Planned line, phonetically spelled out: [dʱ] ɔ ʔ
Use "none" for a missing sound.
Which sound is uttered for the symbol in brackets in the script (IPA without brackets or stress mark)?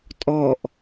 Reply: tʼ